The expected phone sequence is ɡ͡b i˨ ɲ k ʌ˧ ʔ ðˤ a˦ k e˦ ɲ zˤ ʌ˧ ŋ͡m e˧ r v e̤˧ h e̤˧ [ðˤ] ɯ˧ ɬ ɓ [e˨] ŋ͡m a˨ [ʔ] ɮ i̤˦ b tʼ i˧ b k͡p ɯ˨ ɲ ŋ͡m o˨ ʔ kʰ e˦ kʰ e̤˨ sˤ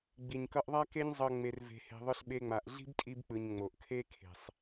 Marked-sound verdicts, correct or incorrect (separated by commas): correct, incorrect, correct